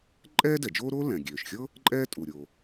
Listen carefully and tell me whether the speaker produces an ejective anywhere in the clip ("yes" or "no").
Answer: yes